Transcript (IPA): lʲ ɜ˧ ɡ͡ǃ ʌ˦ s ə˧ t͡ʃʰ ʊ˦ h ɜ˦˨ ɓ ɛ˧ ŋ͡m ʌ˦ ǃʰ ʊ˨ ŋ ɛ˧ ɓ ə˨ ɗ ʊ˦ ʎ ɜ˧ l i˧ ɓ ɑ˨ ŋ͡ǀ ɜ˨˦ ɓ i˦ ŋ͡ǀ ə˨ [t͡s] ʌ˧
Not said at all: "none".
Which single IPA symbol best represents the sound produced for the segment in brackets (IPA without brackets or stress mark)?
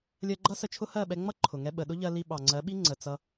t͡s